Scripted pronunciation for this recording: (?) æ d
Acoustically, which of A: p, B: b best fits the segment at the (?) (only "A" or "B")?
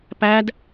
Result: A